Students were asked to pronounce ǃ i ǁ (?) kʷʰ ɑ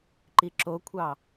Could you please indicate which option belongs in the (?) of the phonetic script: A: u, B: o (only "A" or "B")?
B